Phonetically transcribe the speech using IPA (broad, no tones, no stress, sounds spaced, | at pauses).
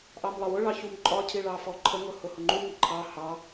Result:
ʔ ɑ m lˠ ə w ʊ ɭ ɑ ç u m ǃʼ ɒ cʰ i ɭ ɑ f ɔ ǃʰ ə ŋ ʊ h ʊ h ʊ ŋ͡ǃ u ŋ i ǃʰ ɑ h ɑ